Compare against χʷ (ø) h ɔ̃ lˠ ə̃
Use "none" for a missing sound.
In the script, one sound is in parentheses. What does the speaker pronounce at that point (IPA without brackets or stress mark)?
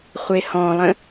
e